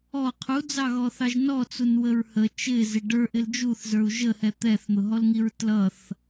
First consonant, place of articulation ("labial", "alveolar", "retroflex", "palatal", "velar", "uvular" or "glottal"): uvular